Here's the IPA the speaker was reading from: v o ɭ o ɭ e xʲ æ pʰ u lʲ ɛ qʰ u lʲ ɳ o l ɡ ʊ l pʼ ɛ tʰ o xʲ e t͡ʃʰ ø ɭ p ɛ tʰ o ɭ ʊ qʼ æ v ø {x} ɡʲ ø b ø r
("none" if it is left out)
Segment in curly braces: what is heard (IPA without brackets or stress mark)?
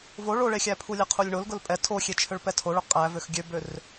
x